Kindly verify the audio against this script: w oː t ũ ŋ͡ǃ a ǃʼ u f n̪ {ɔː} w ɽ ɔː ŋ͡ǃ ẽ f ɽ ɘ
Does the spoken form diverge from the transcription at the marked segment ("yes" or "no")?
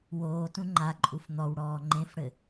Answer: yes